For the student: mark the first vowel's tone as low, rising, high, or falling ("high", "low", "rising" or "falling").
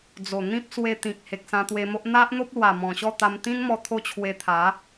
low